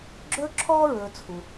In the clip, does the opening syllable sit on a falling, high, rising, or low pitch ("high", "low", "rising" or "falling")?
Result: high